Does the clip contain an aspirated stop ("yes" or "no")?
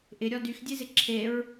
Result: yes